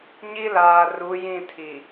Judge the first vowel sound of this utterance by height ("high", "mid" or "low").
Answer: high